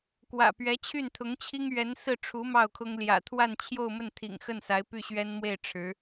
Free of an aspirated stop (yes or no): no